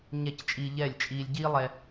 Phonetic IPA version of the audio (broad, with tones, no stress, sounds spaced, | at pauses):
ɲ ɛ˥˩ c t͡ʃʼ iː˧ ʎ ɛː˥˩ lʲ t͡ʃʼ iː˧ lʲ ɟ iː˥ lˠ ɛ˧